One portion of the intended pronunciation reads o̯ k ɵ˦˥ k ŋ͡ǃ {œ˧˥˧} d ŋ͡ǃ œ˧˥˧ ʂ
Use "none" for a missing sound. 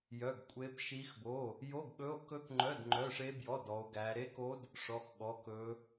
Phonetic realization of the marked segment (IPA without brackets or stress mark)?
œ˧˥˧